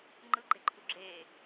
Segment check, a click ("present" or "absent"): present